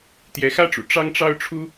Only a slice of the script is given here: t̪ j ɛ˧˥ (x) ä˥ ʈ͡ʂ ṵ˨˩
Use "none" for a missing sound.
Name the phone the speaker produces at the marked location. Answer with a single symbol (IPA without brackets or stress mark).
x